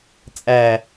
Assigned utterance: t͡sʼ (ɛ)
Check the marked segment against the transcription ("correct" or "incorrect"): incorrect